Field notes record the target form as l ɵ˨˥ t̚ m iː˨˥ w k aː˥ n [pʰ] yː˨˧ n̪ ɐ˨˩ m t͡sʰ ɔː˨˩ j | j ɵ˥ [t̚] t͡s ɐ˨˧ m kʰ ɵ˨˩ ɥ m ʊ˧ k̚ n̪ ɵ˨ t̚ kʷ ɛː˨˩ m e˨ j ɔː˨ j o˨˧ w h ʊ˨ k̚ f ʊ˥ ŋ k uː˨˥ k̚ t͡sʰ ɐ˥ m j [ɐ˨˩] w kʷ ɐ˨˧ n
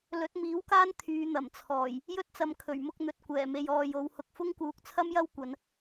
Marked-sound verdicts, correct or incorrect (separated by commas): incorrect, correct, incorrect